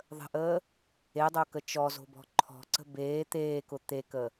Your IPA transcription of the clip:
ðˤə̤ʔəː | edˤokə t͡ʃɔzo̤bɔ̤ ǃʰɔ̤ǀə̤ beː t̪eːkʊ t̪ekə

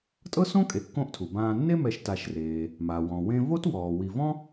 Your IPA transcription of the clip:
tʼɤ˥sõ˥ kʼe˨kːõ˦ʔtʰu˩ bãː˨nːe˥mɛ˨ʃ ta˨ʃreː˩ | ma˩ wɔ̃˩wẽ˦ vo˥twɔː˩ wi˨vɔ̃˥

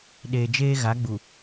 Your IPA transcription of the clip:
ɗeː˨d͡ʒeː˦ɣa˨˦ɡ͡bu˨

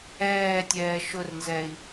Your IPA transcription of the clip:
ɛːtʲɛː ʃʊrnzɛːi̯

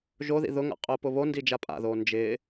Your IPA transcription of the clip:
ʒoðḭ ðʊŋa̰ qʼʊːpʊβondi d͡ʒapʼa̰ðoː nd͡ʒɪː

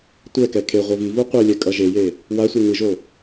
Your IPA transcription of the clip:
tʷɛkɛ kʰe ʁʷɛvivu qʷelʲɛ kʼʌʒeje | wasʷi ŋɯʒo

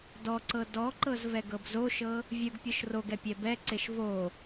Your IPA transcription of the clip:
dɔǀɤ dɔǃɤz vɛɡɤbzoʃɤ | vʲɯɡpʲɤʃ roɡɛ pʲɛbɛǀeʃ vo

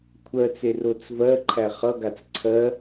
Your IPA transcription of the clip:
kʷʰɜt͡se rot͡svɜǃʰæ χʌɡat͡s ǀʰɜ

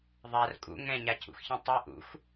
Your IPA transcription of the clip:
ðˤar kʼṵ ŋɛ̃ɲacʰṵxçĩ tˤi ʔṵx

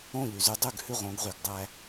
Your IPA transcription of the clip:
õ˥˩ʎy˩zy˧dˤʉ˥˩ɡ hʉ˥˩ʁõ˩˥ɡʁy˩ɡdˤæ˧

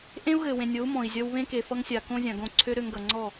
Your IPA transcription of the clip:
ʔẽ˦u̯ɣɘ˨wẽ˨nʲo˨˦u̯ mɔ̃˨i̯zʲʌ˧w βẽ˦ke˨ fʌ˧ŋsʲa˨ kõ˦zʲã˨ ɡõ˦˨ǀʰø˦ ɾø˧ŋɡʌ˨ŋ͡ǀɔ˦˨

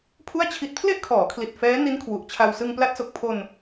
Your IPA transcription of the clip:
pʰu˥˩a̯t͡ɕʰi˦˥t̚ pʰle˥˩ʔkʰɔː˩˦kʰli˨˩t̚ fɛː˦˥ni˦˥nkʰwu˨˩ʔt͡ɕʰa˧w sɯ˧ŋpla˦˥t̚so˨˩k̚pʰo˧n

